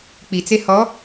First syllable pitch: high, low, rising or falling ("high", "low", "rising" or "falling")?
low